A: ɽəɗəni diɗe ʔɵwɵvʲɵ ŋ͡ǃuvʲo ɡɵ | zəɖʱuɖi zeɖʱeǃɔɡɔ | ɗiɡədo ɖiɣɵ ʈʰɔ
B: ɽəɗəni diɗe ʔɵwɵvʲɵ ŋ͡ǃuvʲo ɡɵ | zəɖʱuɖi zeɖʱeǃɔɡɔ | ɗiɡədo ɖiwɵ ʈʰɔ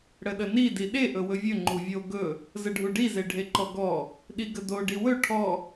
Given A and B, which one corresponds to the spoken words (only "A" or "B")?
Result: B